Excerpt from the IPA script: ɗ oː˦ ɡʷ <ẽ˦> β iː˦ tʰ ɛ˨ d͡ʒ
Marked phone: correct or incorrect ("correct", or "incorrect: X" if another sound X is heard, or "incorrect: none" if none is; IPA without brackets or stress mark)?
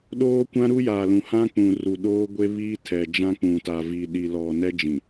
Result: incorrect: e˦